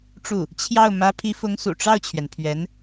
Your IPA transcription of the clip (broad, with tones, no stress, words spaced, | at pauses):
ʈ͡ʂu˥˩ | t͡ɕʰjɑ˥˩ʊ̯ mä˧˥pʰi˧˥fʊ˧˥ŋ sṵ˨˩ʈ͡ʂɑ˥˩ʊ̯t͡ɕʰɥɛ˩n pʰɥɛ˧˥n